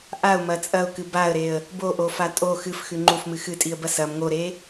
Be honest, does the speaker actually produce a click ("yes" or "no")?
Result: yes